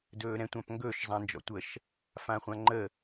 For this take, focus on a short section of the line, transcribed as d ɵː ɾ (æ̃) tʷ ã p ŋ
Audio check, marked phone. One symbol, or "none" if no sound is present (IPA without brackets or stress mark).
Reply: ɛ̃